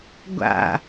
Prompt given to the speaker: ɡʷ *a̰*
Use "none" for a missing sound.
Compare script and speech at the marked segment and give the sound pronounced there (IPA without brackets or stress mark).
a̰